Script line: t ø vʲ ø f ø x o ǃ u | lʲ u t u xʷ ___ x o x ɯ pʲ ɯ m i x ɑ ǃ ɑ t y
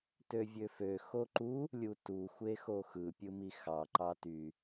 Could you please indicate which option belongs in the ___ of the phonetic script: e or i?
e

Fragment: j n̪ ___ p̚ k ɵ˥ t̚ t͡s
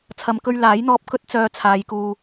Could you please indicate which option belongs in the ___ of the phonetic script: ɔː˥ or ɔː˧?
ɔː˧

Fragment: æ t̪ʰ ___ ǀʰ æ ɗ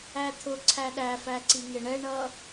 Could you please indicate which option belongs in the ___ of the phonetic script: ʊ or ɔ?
ʊ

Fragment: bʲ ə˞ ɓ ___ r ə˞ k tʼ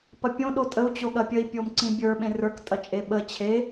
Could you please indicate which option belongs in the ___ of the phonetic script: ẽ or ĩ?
ẽ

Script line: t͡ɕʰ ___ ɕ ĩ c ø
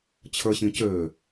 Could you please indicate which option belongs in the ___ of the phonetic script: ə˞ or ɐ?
ə˞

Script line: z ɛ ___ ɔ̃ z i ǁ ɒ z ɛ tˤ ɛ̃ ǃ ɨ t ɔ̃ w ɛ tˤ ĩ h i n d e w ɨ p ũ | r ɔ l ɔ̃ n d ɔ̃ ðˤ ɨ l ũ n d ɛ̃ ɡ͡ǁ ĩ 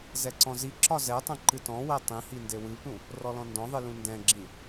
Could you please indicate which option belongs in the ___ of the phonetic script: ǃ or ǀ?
ǀ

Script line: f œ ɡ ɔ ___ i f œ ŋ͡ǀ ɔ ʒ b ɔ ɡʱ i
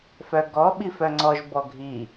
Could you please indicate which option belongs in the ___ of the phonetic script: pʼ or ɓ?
ɓ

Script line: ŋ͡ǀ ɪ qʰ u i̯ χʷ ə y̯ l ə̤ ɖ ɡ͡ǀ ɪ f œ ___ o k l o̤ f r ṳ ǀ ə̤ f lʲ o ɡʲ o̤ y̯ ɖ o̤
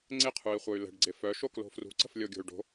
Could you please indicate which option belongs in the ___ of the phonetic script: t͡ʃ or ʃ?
ʃ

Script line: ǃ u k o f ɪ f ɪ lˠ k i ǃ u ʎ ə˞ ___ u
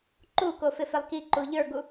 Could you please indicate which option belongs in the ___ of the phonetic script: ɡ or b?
ɡ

